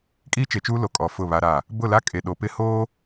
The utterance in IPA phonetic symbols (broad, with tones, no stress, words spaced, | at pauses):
kʼiː˦t͡ʃe˨t͡ʃuː˦lo˨ kʼɔ˨ fʊ˦˨βa˦ɾa˦˨ | bʊ˦˨la˦kʼe˨ ɗo˨pɪ˦ hoː˦